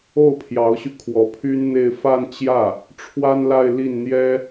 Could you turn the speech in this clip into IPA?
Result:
o˥˩ ʊ̯ pʰ j ɑ˧˥ ʊ̯ ɕ y˧ kʰ w ɔ˧˥ pʰ y˥ n n̪ e˥˧ ɪ̯ f a˥˧ n t͡ɕ j ä˥˩ | ʈ͡ʂʰ w a˥ n l a˥˧ ɪ̯ l i˥˩ n n̪ j ɛ˥

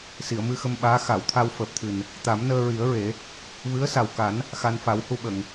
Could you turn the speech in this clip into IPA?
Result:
s i˨˩˨ ə̯ m ɨ˧ x ə˧ m ɓ aː˧˥ x a˨˩˨ w t̪ʰ a˧ w f əː˨˩ p̚ t̪ʰ ɨ˨˩ n | t̪ a˨˩˦ m n əː˧ ɹ i˨˩˦ ə̯ ɹ e˨˩˦ | v ɨ˧˥ ə̯ s a˨˩ w k a˨˩˦ n | x a˧ n f a˨˩˦ w h u˧ ɓ ə˨˩˨ ŋ

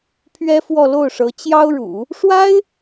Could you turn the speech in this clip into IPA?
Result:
pʰ ɥ ɛ˥ f w ɔ˥˧ l o˥˩ ʊ̯ ʂ ɤ˧˥ t͡ɕ j ɑ˥ ʊ̯ ɻ ṵ˨˩˦ | ʂ w a˥ ɪ̯

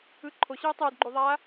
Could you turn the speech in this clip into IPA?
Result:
ɯ ǃʰ o ɕ ɯː tˤ ɯː d ɡ͡ǃ u ðˤ aː

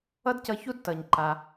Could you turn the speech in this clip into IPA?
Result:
ʌ˥ d c ʌ˧ ç u˥ d t ʌ˩ ɲ ǃ a˩

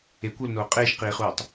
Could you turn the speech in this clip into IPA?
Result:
e kʷ o l n oː qʼ eː ʃ q iː χ uː tˤ

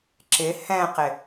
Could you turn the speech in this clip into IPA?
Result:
ǁ ɪ h ɛ̃ q ɪ

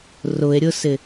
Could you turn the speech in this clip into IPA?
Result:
r ʊ e̯ ɾʲ ʊ s ɪ

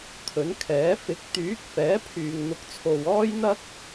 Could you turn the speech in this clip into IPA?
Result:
t̪ʰ ɵ˨˥ n kʰ ɛː˨˥ f ɪ˨˥ k̚ t̪ yː˨˥ k̚ f ɛː˨˥ pʰ yː˨ ŋ n̪ ʊ˨˥ k̚ t͡sʰ o˨ w ɔː˥ j n̪ ɐ˥ k̚

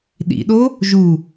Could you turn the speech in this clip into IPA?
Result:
ɗ ḭ ɗ o | ʒ u

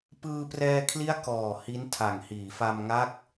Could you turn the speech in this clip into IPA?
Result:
p ɯː˧ p r ɛː˧ kʰ l i˦˥ a̯ k ɔː˨˩ h i˦˥ n tʰ a˨˩ ŋ h iː˩˦ f a˧ m ŋ a˦˥ k̚

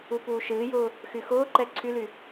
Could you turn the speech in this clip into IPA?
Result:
u p uː ʃ ɨː j ʊː | x y x ʊː ǃ ɛ ǀʰ y l y

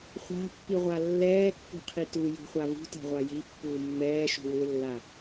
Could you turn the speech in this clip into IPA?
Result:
χʷ a̤ pː i ʁʷ a lː ɛː kː ṳ qʰ i t u j ṳ χʷ a v ṳ t a̤ ʁʷ a j i pː uː mː ɛː ʃ ṳ w ʏ lː a

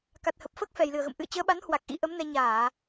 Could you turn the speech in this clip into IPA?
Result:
k a˨˩ t̚ h ə˨˩ p̚ f əː˦˥ k̚ f ɛ˨˩ j l ɨ˨˩ ə̯ ɣ ə̰˧˨ m ʔ ɨ̰˧˨ ə̯ t͡ɕ əː˨˦ ɓ a˨˦ n h w a˨˩ k̚ ʔ ḭ˧˥ ʔ ə˨˦ m n ɛ˧ ɲ aː˧˩˨

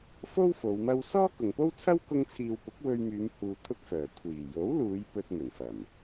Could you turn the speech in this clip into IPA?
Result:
f o˥ w f o˨˧ w m ɐ˥ w s ɔː˥ k ʊ˨ ŋ p o˥ w t͡sʰ ɐ˥ w k ʊ˧ ŋ t͡sʰ iː˨ w p ʊ˨˥ k̚ w ɵ˧ ɥ m yː˨˧ m h uː˧ t̪ʰ ʊ˥ k̚ f œː˨˩ kʷʰ iː˨˩ j o˨˥ w l uː˨˧ j p ɵ˧ t̚ m ɵ˨˩ n f ɐ˨˩ m

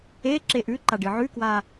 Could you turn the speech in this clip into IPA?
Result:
e ǁ e ʔ ʉ ǃ a ɖ ɨ ʕ ʉ k w a

